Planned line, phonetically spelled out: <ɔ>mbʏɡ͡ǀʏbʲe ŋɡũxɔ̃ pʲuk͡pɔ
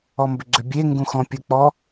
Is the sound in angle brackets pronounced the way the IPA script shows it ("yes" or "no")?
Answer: yes